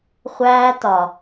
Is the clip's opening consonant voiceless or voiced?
voiceless